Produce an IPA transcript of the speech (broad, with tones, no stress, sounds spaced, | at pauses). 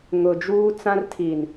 ŋ ʊ˨ d͡ʒ uː˦ t͡s ã˦ r tʰ i˨ n